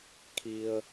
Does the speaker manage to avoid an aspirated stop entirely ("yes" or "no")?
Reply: no